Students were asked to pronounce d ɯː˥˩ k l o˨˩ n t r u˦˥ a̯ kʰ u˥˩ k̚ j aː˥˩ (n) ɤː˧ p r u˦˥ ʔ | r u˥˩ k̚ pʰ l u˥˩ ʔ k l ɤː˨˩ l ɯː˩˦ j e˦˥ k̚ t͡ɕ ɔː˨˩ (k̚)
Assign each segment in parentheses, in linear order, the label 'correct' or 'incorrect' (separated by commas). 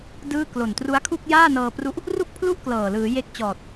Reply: correct, incorrect